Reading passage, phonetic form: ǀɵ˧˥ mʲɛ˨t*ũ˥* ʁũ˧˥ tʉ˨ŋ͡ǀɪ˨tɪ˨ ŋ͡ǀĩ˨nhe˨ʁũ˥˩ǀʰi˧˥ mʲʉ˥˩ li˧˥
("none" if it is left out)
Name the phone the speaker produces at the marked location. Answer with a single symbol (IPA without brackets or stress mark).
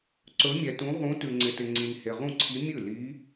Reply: ũ˧˥